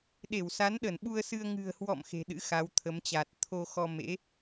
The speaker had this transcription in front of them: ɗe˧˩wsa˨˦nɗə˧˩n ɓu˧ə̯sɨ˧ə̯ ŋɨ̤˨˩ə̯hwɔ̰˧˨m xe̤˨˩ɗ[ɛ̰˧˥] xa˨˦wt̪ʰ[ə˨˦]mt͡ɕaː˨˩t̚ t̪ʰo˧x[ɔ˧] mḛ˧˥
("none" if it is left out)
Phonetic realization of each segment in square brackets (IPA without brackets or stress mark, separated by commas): ɨ̰˧˥, ə˨˦, ɔ˧